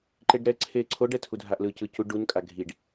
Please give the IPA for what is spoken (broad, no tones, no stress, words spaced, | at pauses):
ǃeɖɾɛ ǀʰeǀʰo ɖɛtʰudʱaʔlɯ cɯcu ɖun kʼaɡʱiɖ